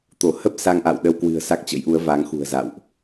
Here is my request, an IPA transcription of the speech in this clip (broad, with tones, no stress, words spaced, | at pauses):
t̪o˧˩hə˦˥p̚ sa˧ŋʔa̰˧˨w ɗə˧wkwɨ̤˨˩ə̯ sa˦˥k̚t͡ɕə̰˧˥jʔu˨˦ə̯ va˨˦ŋxṳ˨˩ə̯ za̰˧˨wʔ